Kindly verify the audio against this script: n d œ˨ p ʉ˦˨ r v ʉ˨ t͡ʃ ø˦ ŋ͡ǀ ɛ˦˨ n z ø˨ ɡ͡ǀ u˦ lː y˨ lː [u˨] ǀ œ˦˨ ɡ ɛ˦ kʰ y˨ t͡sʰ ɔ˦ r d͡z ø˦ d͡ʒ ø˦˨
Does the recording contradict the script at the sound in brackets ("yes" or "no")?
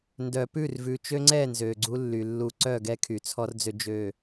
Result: no